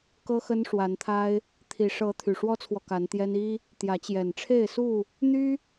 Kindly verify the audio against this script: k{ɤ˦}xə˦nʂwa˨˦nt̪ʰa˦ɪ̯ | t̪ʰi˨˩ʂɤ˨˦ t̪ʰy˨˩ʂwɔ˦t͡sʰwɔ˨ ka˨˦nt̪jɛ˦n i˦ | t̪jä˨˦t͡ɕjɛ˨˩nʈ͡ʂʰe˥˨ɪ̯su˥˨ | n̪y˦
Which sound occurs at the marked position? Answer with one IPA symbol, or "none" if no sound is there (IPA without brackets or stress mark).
ɤ˦